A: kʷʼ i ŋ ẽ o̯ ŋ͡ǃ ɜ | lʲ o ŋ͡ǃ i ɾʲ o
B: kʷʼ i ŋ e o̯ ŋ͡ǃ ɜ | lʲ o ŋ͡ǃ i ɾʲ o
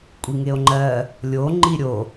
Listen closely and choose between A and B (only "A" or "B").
B